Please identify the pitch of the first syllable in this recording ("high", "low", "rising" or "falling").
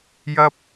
high